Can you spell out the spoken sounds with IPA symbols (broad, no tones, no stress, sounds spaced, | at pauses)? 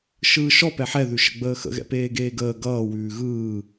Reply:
ʃ ɯː ʃ ɔ p ɛ ħ ɛ ð ʉ ʃ ə̰ ɡ͡b əː x ə̰ ɣ ɛ̰ p eː ɡ eː ɡ əː ɡ ʌː w ʉː ɣ ɯː